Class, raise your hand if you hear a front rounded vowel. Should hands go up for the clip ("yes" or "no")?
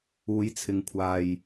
no